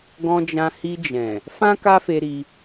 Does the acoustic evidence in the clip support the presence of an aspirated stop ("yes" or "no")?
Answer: no